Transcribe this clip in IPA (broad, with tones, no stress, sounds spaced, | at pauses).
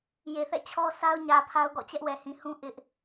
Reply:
j e˨ θ ɛ̰˦˨ t͡ɕʰ ɔ˦ s a˦ ʊ̯ ɲ ä˨ pʰ a˦ ʊ̯ ɡ ɔ̰˦˨ t͡ɕ ɛ˦ ʔ w ɛ˨ h ĩ˨ h ũ˦ ʔ ɪ˦ ʔ